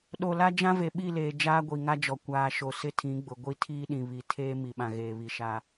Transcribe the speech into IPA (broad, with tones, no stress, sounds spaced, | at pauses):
ɗ o˨ l a˦ d͡ʒ ã˦ v e˨ ɓ i˦˨ l eː˨ d͡ʒ aː˦ ɡʷ i˨ ŋ a˦ d͡ʒ ɔ˨ kʷ aː˨ ʃ o˨ s ɪ˦ tʰ ĩ˨˦ ɡ͡b ʊ˨ ɡʷ i˦ tʰ iː˦ ɗ ĩ˨ β i˨ tʰ eː˦ m i˨ ɓ ã˨ ɣ eː˨ β i˨ ʃ a˦